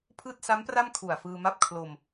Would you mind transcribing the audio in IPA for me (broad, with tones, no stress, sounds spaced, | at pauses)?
pʰ ɯː˥˩ t̚ s a˦˥ m p r a˥˩ m kʰ u˨˩ a̯ f ɯː˧ m a˥˩ p̚ kʰ l o˧ m